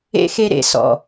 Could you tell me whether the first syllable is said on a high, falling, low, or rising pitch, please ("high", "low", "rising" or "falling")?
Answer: high